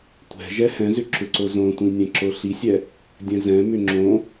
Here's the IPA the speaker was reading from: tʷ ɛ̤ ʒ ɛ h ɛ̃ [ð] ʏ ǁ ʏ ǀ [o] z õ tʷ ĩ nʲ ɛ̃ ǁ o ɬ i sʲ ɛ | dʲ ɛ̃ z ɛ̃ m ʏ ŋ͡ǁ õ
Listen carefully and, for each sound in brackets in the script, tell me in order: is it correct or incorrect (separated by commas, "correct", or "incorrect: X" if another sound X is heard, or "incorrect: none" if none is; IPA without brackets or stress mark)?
incorrect: z, correct